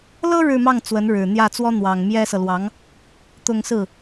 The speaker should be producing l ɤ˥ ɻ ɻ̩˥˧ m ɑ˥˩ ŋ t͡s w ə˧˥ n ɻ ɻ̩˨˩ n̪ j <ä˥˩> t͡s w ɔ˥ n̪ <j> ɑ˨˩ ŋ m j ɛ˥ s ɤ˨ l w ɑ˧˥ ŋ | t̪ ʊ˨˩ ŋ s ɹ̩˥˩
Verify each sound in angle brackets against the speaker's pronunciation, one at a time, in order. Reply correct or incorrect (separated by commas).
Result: correct, incorrect